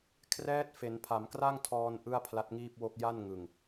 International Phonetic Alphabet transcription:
kʰ r ɛː˦˥ t̚ f e˩˦ n pʰ a˩˦ m k r a˥˩ ŋ tʰ ɔː˧ n ʔ ɯ˥˩ a̯ pʰ l a˦˥ t̚ ŋ iː˥˩ p̚ w o˥˩ k̚ j a˥˩ n ŋ ɯ˨˩ ŋ

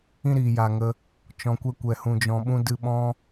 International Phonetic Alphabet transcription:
ĩ˦ ɾ iː˨ j a˨ ŋ ə˧ | t͡ʃ ɔ̃˨ kʷ ɛ˧ kʷ ɛ˨ h ũ˨ d͡ʒ ɔ̃˨ ɓ ũ˧ d ɨ˨ ɓ ɔ̃˧

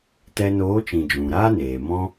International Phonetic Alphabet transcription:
t ɛ˧ n oː˨˦ t͡ʃ ĩ˨ d͡ʒ ũ˨ ɾ aː˦ n eː˨ m ɔ̃˦

